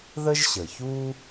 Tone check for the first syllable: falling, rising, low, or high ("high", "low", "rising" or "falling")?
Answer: high